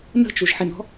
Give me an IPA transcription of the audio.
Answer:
n ə̤ t͡ʃ u ʒ ħ ɪ n ɔ̤

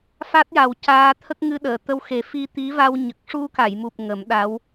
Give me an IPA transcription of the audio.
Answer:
f a˦˥ t̚ j a˨˩ w c aː˧ t̪ʰ ə˦˥ k̚ ŋ ɨ˧ ɗ əː˨˩˨ t̪ ə˧ w x e˨˩˦ f i˧ t̪ i˧˥ v a˧ w ɲ ə˨˩ k̚ ʂ u˧ k a˨˩˨ j m u˨˩ p̚ ŋ ə˨˩˦ m ɗ a˧˥ w

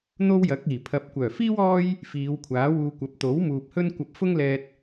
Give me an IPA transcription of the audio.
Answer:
n̪ o˥ w j ɐ˨˥ k̚ iː˨˩ pʰ ɐ˨ p̚ kʷ œː˨˩ f iː˥ w ɔː˥ j | f iː˨˧ w kʷʰ aː˨˥ w uː˧ kʷ ɐ˨˥ p̚ t̪ o˨˥ w m uː˨ p̚ h ɵ˥ n kʷ ɐ˧ p̚ f ʊ˥ ŋ l ɛː˧ t̚

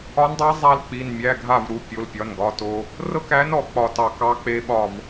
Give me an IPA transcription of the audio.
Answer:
ɒ˧˥ n dˤ æ˧˥ zˤ a˥ l k͡p i˩˧˩ n mʲ æ˩˧˩ ɡʱ a˧˩ v ɾ u˩ pʲ o˩˧˩ l pʲ ɒ˩˧˩ n ɡ ɒ˩˧˩ t o˧ | r ɤ˥ k æ˧˥ n ɔ˩ k͡p ɒ˧˩ t ɑ˧˩ k ɑ˧˥ k͡p e˧˥ ɓ ɒ˧˩ v

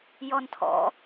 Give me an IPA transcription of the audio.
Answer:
j ɔ n tʰ ɔ̰

